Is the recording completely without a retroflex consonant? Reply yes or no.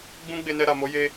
yes